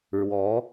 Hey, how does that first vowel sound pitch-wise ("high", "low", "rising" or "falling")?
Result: rising